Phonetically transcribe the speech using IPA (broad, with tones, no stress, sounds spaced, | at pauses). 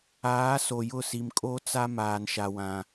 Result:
aː˨˦ s o˨ j ʊ˦˨ s i˨ m kʼ o˦ t͡s a˦ m aː˨ n ʃ a˨ w ã˨